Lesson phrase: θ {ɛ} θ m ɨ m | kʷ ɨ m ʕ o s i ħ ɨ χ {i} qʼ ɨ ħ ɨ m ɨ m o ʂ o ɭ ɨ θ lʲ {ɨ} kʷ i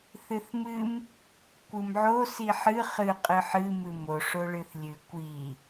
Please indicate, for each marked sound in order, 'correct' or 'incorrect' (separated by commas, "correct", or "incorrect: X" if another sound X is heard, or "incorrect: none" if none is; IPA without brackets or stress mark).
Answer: incorrect: ɨ, incorrect: ɨ, correct